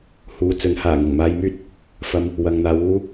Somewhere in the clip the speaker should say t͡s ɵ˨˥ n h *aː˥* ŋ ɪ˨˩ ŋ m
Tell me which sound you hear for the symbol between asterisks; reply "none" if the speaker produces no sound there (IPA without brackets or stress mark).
aː˨˩